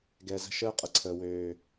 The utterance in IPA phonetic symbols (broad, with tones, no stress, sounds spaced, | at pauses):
ɡ ɛ˨ z ə̤˦ ʃ əː˦ qʼ ə˨ ǀʰ əː˨ w øː˨